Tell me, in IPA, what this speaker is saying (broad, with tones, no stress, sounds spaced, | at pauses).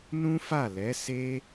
n ũ˦ f a˦˨ l ɛ˨˦ s e˦